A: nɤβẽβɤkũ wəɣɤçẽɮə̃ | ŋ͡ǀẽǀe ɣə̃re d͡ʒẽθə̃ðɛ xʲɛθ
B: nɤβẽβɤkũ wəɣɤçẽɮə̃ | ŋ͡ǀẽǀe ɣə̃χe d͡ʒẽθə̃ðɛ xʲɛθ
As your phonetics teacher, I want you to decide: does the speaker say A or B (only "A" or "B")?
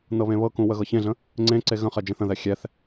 B